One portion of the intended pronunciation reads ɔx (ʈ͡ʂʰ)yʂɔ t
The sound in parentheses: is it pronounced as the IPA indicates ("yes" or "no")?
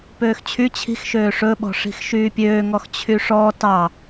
no